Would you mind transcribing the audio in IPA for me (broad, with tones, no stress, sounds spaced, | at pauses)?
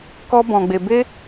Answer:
k ɔ˦ b ɔ̃˧ ɡ͡b e˧ b e˦